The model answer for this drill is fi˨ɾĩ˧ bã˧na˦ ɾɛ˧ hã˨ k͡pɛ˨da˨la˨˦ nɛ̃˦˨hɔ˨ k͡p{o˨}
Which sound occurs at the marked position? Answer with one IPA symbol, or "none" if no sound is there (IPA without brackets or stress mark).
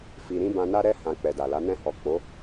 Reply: o˨˦